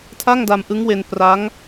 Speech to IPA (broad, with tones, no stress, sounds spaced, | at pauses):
tʰ a˥˩ ŋ d a˧ m ʔ ɯ˦˥ ŋ w e˧ n p r a˦˥ ŋ